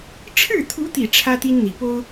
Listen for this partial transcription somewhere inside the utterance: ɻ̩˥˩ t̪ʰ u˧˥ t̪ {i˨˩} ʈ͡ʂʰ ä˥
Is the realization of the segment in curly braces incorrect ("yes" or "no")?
no